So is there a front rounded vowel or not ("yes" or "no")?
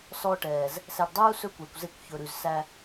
no